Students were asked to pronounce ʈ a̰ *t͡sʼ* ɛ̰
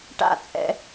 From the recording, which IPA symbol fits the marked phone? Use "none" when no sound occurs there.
t͡sʼ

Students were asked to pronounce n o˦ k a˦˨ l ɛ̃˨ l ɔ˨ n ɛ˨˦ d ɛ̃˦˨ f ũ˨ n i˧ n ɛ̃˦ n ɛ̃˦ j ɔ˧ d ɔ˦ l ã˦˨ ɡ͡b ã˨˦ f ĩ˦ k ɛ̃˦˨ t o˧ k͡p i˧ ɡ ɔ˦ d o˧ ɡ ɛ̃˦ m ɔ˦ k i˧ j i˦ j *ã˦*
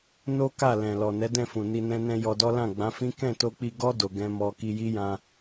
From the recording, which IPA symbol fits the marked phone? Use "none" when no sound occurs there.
ã˧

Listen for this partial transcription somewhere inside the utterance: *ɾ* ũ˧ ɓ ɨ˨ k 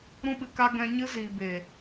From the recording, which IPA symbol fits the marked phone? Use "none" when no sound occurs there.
ɾ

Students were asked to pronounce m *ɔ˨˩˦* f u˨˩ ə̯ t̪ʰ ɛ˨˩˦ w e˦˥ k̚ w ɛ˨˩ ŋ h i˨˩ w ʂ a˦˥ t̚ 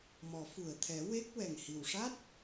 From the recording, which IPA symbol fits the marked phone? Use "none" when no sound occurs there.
ɔ˨˩˦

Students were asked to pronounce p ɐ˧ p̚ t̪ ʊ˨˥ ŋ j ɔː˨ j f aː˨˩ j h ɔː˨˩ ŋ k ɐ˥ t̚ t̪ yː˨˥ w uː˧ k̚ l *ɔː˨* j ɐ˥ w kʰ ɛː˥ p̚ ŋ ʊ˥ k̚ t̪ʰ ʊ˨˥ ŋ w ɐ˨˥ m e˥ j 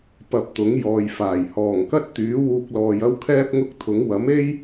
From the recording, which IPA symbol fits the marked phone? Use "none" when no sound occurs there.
ɔː˨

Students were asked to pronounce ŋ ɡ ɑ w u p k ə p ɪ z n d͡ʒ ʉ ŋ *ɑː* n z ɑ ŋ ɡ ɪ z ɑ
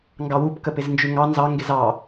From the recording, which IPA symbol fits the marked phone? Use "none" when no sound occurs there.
ɑ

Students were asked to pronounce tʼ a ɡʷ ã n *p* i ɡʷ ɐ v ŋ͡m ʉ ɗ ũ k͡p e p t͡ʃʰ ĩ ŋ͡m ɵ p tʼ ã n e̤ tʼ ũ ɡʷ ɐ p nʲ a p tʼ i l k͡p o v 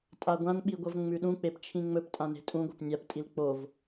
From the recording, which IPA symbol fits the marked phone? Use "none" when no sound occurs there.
ɓ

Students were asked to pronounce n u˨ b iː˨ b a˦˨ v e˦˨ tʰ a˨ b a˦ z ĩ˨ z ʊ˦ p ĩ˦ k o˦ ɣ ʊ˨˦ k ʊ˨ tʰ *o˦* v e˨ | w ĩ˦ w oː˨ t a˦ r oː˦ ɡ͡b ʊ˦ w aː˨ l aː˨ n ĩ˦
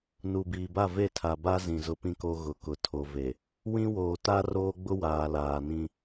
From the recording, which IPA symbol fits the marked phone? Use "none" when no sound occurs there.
o˨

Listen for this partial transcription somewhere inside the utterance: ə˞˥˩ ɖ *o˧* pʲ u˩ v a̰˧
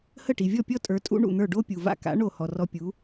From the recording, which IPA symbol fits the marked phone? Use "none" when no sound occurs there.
o˥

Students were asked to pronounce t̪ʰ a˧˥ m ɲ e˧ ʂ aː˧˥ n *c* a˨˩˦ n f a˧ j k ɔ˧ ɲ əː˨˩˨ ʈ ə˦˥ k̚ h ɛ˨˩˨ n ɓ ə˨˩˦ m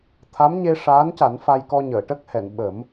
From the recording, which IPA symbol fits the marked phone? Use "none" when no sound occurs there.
c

